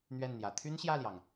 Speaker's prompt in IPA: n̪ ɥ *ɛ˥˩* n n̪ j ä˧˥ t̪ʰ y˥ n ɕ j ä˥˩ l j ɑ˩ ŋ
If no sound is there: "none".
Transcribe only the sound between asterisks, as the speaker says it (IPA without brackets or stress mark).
ɛ˥˩